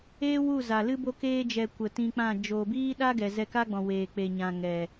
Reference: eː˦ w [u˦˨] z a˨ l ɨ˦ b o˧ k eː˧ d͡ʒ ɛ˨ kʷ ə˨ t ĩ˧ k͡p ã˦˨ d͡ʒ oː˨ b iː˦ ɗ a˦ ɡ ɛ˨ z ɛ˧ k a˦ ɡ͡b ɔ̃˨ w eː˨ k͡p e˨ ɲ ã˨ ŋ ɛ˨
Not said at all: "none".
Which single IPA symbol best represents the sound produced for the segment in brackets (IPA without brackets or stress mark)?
u˦˨